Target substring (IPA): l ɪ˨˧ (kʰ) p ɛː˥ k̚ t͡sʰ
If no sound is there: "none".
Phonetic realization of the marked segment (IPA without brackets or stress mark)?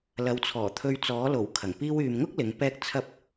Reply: ŋ